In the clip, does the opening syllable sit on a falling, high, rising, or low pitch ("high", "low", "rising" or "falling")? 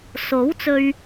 rising